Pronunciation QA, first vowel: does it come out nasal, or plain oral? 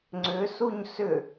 oral